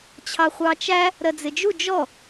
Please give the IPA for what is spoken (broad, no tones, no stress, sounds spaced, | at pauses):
t͡ɕʰ ɑ χʷ ɑ t͡ʃ æ | ɾ ɜ d͡z ɪ d͡ʒ u d͡ʒ ɔ